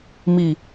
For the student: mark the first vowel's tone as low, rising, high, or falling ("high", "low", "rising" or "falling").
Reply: low